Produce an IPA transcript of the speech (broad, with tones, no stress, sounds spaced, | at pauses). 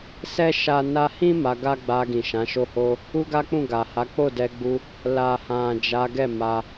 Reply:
s ɛ˦ ʃ a˦ n a˧ h ĩ˦ m a˧ ɡ a˦ ɡ͡b a˧ ɡ ĩ˨ ʃ ã˨˦ ʃ o˦ h o˦ | u˦ ɡ a˦ k͡p ũ˦˨ ɡ a˨ h a˨˦ k͡p o˦˨ d ɛ˧ ɡ͡b u˧ | l a˨ h ã˨ d͡ʒ a˨˦ ɡ ɛ˦˨ m a˧